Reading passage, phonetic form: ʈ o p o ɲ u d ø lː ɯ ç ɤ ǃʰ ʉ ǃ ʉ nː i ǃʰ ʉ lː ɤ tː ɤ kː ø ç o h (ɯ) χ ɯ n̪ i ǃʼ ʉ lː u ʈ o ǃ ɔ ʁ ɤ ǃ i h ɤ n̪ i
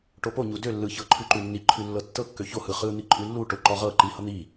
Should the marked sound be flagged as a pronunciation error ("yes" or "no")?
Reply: no